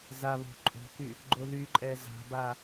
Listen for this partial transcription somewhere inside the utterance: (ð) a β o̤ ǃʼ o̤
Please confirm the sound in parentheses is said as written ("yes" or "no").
no